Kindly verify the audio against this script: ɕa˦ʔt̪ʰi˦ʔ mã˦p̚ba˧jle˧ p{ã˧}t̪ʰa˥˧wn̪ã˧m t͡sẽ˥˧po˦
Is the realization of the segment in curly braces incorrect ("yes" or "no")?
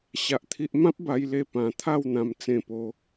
no